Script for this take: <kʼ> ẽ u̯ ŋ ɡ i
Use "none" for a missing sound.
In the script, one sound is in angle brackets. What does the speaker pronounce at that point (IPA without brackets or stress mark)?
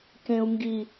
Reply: k